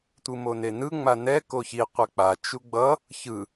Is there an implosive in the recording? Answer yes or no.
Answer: no